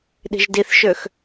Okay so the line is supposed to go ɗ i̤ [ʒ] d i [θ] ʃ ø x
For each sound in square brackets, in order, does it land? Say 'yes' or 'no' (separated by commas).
yes, yes